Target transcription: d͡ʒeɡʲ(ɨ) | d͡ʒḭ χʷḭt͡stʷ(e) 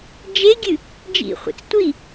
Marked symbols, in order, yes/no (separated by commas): yes, no